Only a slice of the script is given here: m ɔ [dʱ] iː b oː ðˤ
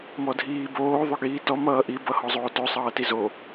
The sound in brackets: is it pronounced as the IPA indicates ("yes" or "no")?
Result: yes